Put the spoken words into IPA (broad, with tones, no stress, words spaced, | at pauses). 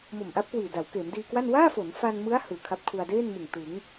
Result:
mo˨˩mʔa˦˥p̚kwiː˨˩ da˩˦wkeː˩˦mdiː˧kwa˥˩n waː˥˩fo˩˦nfa˧nmɯ˦˥a̯ hɯː˨˩kʰa˦˥p̚kʰu˧a̯ deː˥˩nmɯ˨˩ŋ tɯ˩˦ŋ